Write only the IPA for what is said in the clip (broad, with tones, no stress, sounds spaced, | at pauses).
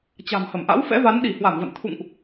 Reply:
t͡ɕ a̤˨˩ m h ə˧˩ m ʔ a̰˧˥ w f ɛ̰˧˥ v a˨˦ n ɗ i˧˩ h w a˧˩ m v ə̰˧˨ n t̪ʰ ṵ˧˨ ŋ ʔ